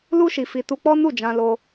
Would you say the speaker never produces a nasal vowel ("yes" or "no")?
no